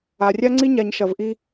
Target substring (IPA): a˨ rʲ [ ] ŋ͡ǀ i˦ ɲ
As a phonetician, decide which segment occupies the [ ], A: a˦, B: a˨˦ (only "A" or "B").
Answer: A